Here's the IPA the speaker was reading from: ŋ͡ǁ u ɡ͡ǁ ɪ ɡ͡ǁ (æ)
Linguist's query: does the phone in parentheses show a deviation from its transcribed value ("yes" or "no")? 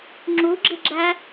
no